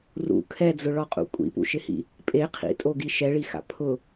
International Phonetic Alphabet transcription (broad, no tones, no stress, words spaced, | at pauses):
rṵ kʰɛd͡zʊɭɔqʼṵ kʷʼḭpṵʃɪhḭ | pʼe qʰḭtʼoɡi ʃɛɭixa̰ pʰʊ